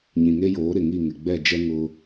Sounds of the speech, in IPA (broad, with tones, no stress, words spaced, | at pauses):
ɲĩ˨ŋe˦joː˨˦ɾɪ˨ ŋi˦˨ŋɪ˨ ɡ͡bɛ˦˨d͡ʒɛ˦ ŋʊ˦